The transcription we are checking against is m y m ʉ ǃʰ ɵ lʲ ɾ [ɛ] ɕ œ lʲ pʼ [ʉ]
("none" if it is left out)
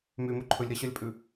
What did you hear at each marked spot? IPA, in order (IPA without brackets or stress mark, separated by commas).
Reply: ɛ, ʉ